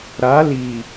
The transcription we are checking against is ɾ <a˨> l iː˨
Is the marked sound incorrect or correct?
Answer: incorrect